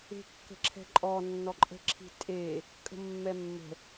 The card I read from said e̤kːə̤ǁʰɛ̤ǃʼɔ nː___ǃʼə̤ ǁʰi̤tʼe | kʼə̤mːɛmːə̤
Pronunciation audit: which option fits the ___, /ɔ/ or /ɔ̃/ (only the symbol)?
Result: ɔ